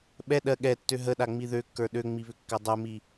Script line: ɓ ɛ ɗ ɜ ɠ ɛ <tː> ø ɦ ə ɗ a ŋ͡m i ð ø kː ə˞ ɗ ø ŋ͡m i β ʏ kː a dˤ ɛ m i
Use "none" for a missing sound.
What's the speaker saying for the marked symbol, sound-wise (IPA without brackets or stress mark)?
tː